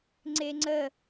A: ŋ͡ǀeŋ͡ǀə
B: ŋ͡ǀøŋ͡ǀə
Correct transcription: A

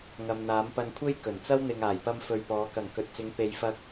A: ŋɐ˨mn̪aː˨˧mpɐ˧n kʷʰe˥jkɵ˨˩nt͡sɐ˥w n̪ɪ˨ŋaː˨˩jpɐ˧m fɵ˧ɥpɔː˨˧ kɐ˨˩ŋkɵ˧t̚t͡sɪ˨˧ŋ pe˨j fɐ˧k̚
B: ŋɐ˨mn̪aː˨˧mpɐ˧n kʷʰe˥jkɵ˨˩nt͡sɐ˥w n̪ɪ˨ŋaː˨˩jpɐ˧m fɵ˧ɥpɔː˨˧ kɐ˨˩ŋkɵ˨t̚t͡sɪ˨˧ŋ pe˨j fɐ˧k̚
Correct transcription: B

